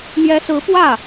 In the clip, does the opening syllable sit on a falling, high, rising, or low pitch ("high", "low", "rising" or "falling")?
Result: rising